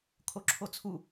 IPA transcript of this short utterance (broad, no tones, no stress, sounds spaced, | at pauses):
kʰ o ǁʰ o t͡sʰ u